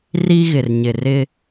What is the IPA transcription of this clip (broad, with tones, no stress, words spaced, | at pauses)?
ri˦ɣɪ˨rɲɪ˨rɪ˦